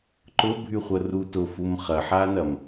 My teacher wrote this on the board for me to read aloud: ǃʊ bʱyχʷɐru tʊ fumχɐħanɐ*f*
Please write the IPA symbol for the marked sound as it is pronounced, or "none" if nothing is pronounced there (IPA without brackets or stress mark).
m